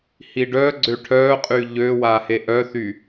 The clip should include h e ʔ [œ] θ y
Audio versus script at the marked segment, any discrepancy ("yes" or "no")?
no